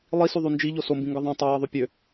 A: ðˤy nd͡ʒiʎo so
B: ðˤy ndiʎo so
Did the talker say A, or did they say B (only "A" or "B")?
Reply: A